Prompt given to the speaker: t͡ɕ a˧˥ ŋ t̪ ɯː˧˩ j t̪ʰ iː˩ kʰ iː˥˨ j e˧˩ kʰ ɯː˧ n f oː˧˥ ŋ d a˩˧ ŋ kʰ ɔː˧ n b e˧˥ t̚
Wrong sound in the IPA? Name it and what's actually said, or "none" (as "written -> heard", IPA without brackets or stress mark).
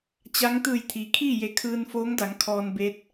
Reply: none